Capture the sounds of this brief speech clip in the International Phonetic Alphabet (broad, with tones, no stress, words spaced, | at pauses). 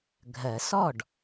ɡʱɜ˨˩˦sɔ˥˩ɖ